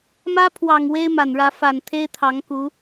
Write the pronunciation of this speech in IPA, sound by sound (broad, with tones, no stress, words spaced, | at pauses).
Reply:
mä˥ pʰwɑ˨˩ŋ we˥ɪ̯ma˨˩nɻä˧˥ fa˨˩nt̪ʰe˥ɪ̯t̪ʰɑ˧˥ŋku˧˥